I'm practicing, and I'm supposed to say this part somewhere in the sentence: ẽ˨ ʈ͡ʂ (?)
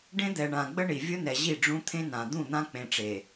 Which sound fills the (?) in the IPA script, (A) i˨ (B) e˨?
B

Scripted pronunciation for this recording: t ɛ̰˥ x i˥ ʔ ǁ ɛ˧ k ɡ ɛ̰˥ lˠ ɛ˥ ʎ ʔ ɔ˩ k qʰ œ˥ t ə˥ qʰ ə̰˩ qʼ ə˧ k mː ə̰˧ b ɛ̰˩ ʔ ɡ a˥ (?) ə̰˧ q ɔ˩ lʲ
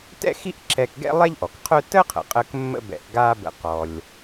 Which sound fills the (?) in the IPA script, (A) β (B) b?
B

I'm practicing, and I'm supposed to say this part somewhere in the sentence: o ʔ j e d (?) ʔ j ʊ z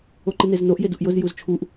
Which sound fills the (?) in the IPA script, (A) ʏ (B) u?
B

